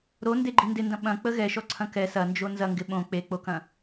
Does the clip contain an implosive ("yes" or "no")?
yes